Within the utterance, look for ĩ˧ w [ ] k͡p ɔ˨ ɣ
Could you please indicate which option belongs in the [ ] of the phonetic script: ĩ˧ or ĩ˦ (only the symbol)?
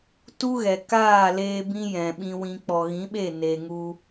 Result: ĩ˧